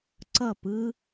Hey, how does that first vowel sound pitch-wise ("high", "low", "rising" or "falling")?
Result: falling